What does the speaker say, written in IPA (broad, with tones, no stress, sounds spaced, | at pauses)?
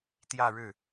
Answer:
t̪ j ä˥˧ ɻ ɻ̩˥˩